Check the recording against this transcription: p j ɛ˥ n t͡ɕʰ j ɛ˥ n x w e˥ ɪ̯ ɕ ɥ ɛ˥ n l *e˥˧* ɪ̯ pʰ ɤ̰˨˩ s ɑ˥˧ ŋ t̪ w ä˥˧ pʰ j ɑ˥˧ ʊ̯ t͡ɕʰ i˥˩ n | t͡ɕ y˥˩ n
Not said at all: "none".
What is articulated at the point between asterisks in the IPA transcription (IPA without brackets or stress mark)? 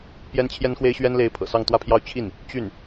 e˥